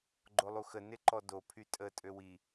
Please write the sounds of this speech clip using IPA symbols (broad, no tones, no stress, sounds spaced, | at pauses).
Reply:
ɡ͡ǃ o lˠ u x ə n ɪ ǃ ɔ d o pʰ y tʼ ə tʼ ø w i